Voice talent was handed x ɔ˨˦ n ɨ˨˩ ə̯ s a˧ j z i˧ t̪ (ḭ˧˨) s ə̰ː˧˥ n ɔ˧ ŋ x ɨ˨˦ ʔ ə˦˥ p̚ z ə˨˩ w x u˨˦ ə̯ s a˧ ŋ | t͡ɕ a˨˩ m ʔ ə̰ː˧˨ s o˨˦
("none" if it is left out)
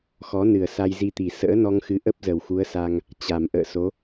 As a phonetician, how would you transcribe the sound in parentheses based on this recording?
i˨˩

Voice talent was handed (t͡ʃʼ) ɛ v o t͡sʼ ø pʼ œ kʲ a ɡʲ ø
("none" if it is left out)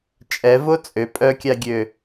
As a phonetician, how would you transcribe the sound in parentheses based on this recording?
t͡ʃʼ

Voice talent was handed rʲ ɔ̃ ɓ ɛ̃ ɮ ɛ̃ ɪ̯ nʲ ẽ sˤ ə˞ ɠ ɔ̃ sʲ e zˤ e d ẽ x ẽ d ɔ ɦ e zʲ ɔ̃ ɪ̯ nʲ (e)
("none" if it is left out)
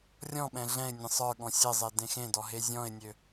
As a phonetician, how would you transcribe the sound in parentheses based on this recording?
ø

